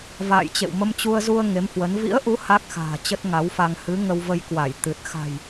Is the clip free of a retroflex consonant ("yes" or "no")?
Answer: yes